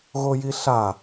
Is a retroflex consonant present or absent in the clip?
absent